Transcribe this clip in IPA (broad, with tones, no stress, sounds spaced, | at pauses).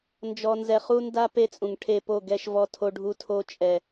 n d͡ʒ ɔ˨ n z ɛ˨ χ u˦ n d a˦ p e˦ t͡sʼ ũ˨ ŋ ʈʰ e˦˨ p o˦˨ ɡ ɛ˦ ʃ v ɔ˦ tʰ o˦ ɖʱ u˦ tʰ o˦ t͡ʃʼ ɛ˨